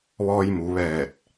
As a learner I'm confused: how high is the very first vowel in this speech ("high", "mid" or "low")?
mid